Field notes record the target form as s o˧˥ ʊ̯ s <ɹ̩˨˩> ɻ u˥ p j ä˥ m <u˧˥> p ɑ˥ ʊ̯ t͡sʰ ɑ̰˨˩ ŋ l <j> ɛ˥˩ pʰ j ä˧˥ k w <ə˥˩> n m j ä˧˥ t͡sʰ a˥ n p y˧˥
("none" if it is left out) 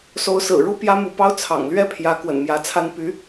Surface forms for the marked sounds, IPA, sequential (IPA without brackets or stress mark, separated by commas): ɹ̩˨˩, u˧˥, ɥ, ə̰˨˩